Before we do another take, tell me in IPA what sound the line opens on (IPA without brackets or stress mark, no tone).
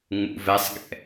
ŋ͡m